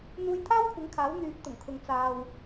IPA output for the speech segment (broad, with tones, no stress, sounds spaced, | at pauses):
n̪ uː˧ j t̪ʰ aː˥ w kʷʰ ɪ˨˥ ŋ kʰ aː˨˥ w n̪ yː˨˥ p̚ t̪ ʊ˨˩ ŋ kʰ ʊ˨ ŋ t͡s aː˨ w